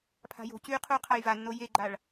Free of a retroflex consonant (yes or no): no